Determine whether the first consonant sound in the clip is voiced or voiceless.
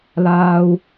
voiced